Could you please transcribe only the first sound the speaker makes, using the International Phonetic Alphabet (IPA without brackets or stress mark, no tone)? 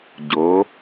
ɟ